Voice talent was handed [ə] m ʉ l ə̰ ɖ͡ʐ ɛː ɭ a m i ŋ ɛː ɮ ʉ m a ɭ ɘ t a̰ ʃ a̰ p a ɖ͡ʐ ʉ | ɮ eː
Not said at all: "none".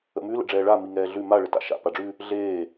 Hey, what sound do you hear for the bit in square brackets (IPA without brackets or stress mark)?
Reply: ə̰